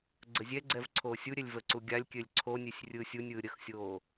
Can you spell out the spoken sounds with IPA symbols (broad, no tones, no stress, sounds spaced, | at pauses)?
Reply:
ɡ͡ǀ ə zʲ ɛ ɡ͡ǀ ɛ v ǀʰ oː sʲ u ɾʲ ɛ lʲ v ə ǀ u ɡʲ a lʲ kʲ ø lʲ ǀʰ o nʲ ø sʲ rʲ ɯː sʲ u nʲ ɯː ɾʲ ə x sʲ oː